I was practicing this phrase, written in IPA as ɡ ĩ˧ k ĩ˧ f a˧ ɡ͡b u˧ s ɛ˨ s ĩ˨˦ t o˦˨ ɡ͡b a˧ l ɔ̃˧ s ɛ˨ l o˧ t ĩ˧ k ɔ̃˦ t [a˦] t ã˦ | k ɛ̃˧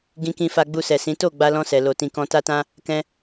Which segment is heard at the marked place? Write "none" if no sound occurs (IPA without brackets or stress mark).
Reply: a˦